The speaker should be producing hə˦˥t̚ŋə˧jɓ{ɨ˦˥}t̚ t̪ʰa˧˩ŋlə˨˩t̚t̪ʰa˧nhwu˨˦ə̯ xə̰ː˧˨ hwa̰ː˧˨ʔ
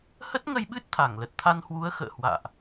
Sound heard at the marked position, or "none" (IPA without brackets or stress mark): ɨ˦˥